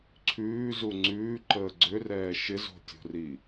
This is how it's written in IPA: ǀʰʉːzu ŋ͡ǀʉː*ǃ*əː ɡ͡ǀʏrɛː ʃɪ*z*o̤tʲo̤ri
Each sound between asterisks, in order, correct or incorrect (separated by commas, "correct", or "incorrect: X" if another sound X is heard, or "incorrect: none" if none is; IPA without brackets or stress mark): correct, correct